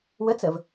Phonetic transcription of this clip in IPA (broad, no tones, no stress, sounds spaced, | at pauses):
w ə t͡s ə v